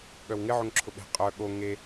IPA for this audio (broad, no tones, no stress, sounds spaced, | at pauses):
ɠ œ w ŋ ɪ ʕ ʊ ŋ ǁʰ ʊ ɓ e̤ qʼ œ ɠ o ŋ e